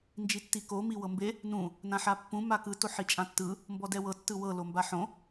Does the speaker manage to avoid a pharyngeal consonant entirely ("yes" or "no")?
no